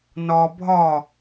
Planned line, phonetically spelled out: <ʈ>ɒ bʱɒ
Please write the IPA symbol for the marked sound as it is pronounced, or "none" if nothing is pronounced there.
n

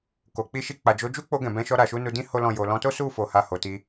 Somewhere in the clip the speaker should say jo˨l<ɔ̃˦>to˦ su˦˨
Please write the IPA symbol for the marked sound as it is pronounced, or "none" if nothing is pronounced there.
ɔ̃˨˦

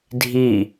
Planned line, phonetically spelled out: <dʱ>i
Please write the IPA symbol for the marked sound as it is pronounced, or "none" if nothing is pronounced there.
dʱ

